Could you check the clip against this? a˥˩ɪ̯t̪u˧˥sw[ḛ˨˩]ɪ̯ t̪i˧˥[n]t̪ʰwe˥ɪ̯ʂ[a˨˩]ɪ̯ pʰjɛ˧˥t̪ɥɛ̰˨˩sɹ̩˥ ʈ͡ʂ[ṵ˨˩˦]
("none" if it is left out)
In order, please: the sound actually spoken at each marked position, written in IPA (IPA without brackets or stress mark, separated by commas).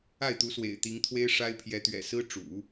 ḛ˨˩, ŋ, a˥, ṵ˨˩˦